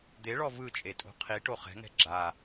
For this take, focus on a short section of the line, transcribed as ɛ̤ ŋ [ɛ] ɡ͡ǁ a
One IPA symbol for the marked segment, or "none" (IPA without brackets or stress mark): ɛ̤